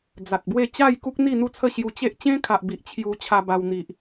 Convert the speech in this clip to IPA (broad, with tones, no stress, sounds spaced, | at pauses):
d͡z a˨ t̚ b w e˥˧ t͡ɕ a˥˧ j k u˦ k̚ n̪ i˥˧ n̪ u˥˧ t͡sʰ ə˥˧ ɕ j u˧ t͡ɕ e˦ ʔ t͡ɕ ẽ˦ kʰ a˨ ʔ b i˨ ʔ t͡ɕʰ j u˧ t͡ɕʰ a˧ b a˧ w n̪ i˨ ʔ